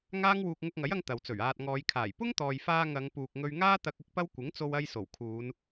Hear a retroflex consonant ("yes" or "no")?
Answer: no